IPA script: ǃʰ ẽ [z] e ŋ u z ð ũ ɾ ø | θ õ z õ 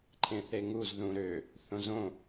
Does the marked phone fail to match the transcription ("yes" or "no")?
yes